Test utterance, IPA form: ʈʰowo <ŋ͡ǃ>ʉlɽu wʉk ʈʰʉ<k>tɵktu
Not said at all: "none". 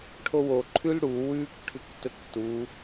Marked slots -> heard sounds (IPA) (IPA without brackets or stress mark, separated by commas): ǃʰ, k